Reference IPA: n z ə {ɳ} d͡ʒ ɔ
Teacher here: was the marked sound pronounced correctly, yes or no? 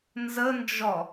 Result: no